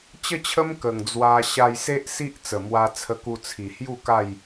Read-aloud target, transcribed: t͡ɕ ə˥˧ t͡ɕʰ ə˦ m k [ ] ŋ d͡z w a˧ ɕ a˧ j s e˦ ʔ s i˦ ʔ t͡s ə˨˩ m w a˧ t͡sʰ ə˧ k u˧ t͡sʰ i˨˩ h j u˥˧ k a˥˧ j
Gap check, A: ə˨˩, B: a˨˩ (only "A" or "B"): A